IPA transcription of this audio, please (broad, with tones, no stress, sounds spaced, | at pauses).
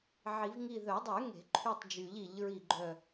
ʕ i˨˩˦ v ŋ i˦˨ ð œ˨˩˦ dˤ y˨˩˦ ŋ e̤˨˩˦ ǃʰ y˦˨ tˤ d͡ʒ y˨˩˦ ʎ i˨˩˦ ʎ ɹ i˦˨ ɡ͡ǃ œ˦˨